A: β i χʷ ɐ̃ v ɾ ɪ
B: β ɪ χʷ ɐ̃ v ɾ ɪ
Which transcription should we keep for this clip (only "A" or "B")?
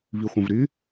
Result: A